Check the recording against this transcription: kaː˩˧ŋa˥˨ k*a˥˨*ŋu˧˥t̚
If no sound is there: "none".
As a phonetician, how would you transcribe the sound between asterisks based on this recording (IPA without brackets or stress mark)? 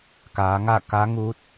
a˧˥